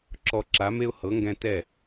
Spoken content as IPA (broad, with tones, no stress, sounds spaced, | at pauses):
ǁ ɔ˧ ǁ a˩˥ m e˥ ʊ̯ h ɤ˩˥ ŋ ɡ ɛ̃˥ t ɛ˥˩